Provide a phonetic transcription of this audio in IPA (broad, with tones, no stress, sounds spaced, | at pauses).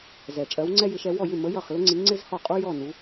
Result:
z ɛ˨˩ t͡ʃʼ ɜ˧˥ w ŋ͡ǀ ɛ˥ j ɪ˧˥ ʃ ɛ˧˥ w ɔ˥˨ j ɪ˥˨ m ə˧˥ j ʌ˥˨ χ l ʊ˥ ŋ͡ǀ i˧˥ ŋ͡ǀ ɪ˥ z h ɔ˥˨ qʼ u˥ j ɔ˥˨ n u˧˥